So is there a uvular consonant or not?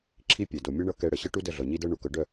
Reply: no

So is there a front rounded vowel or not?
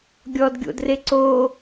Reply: no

